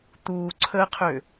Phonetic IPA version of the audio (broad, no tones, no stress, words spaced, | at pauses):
t̪uːǀʰəːqʰø